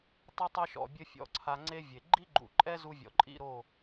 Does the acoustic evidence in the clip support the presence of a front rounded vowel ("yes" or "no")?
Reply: no